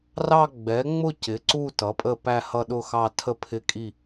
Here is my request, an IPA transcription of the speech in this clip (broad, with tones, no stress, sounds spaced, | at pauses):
r ɑ˦˨ ɡ͡b ɛ˩˥ ŋ͡m ʊ˦˨ c ɪ˩˥ ǀ u˦˨ t ʌ˩˥ pʼ ə˦˨ p æ˦˨ h ʌ˦˨ ɗ ʊ˦˨ x ɑ˦˨ tʰ ə˦˨ pʰ ɪ˦˨ kʼ i˦˨